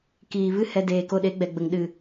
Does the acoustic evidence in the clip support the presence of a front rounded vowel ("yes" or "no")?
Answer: no